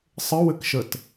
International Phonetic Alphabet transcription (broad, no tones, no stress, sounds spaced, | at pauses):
sˤ ɘ w ɘ k ʃ ə t